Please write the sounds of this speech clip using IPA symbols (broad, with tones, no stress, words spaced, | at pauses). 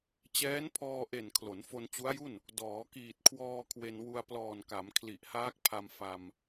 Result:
t͡ɕɛː˦˥npʰɔː˧ʔe˨˩n kʰlo˩˦nfo˧nt͡ɕu˦˥a̯ju˥˩n | dɔː˩˦kiː˨˩t̚kʰwɔː˧ kʰwe˧nwu˧a̯ plɔː˨˩nka˩˦m kʰli˨˩ʔhaː˦˥k̚pʰa˧m fa˧m